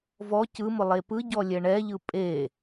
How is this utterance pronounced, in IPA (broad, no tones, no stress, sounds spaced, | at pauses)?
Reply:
v ɔ c ɯ m ʊ lˠ e p ɯ ɟ ɔ lʲ ɛ ɳ ɛ ʎ ɯ pʼ e